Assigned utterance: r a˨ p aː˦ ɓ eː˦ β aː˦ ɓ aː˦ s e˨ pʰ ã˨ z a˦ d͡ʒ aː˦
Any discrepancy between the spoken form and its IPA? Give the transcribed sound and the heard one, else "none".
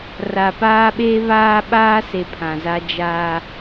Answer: none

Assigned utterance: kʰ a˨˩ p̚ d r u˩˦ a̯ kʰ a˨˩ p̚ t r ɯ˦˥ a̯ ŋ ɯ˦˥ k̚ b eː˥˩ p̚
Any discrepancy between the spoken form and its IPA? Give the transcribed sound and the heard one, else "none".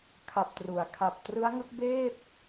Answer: d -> t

